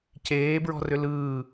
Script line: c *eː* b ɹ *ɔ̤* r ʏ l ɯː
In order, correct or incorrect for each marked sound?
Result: correct, correct

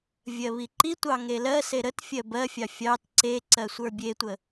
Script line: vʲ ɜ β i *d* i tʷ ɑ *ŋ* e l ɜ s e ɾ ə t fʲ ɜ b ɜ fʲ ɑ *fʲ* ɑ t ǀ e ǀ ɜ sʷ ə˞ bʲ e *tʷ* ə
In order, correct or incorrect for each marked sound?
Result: incorrect: ǃ, correct, correct, correct

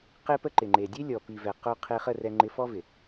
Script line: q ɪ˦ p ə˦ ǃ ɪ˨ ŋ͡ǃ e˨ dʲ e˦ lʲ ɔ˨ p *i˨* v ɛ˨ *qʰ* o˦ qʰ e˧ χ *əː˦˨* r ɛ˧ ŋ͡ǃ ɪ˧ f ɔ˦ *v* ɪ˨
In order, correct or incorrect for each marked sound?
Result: correct, incorrect: q, incorrect: ə˦˨, correct

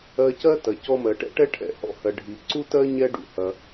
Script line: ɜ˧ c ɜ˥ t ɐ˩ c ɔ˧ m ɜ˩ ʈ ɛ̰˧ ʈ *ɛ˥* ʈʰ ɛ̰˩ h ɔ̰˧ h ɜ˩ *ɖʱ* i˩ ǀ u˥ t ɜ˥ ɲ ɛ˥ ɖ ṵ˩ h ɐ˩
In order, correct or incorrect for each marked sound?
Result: correct, correct

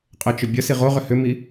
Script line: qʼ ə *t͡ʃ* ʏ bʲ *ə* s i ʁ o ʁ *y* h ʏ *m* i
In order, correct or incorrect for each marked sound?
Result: correct, correct, incorrect: ʏ, correct

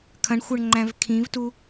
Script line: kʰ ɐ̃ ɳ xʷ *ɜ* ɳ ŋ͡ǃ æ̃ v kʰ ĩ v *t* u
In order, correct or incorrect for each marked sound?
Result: correct, correct

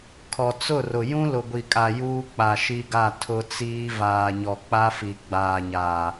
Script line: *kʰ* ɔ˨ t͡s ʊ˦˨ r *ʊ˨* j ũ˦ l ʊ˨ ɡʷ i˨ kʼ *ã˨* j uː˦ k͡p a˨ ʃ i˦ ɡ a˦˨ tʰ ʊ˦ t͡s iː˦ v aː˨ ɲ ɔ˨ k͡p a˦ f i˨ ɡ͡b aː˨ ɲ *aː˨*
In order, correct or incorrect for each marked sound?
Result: correct, correct, incorrect: a˨, correct

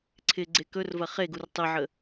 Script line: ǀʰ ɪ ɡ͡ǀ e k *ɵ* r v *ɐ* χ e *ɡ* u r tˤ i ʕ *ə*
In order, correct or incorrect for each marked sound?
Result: correct, correct, correct, correct

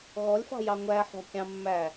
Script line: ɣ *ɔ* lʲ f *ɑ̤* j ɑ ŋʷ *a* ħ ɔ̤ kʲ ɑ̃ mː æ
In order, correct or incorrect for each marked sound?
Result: correct, correct, incorrect: æ

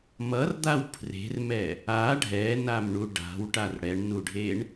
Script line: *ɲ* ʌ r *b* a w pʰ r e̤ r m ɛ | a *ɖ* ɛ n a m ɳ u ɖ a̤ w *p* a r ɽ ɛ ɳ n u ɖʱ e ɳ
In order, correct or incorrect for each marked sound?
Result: incorrect: m, incorrect: d̪, incorrect: ɖʱ, incorrect: ʈ

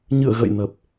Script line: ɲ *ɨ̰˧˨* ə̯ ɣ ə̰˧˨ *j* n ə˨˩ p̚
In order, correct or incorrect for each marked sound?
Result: correct, correct

